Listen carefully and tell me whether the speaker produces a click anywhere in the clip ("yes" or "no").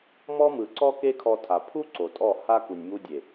yes